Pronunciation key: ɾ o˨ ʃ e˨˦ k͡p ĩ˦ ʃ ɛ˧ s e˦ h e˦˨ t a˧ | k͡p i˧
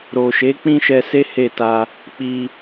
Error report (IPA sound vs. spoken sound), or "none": none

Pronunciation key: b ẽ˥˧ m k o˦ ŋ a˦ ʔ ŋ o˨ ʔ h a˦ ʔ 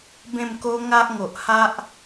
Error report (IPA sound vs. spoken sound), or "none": none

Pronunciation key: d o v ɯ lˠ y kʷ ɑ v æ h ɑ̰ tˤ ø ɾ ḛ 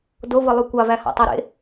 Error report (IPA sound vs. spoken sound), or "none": none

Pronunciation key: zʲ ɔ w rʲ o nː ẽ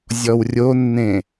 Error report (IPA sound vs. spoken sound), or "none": none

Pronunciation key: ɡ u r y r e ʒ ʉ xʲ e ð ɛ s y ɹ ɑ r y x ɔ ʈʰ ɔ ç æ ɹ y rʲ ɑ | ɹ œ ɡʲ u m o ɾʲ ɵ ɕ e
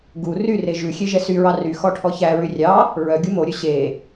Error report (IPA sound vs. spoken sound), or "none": ð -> ʒ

